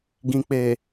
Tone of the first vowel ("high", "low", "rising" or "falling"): low